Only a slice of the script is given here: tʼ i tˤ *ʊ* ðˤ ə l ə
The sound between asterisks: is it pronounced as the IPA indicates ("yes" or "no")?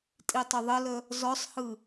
yes